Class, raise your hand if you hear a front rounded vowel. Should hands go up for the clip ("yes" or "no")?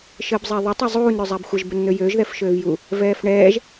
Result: yes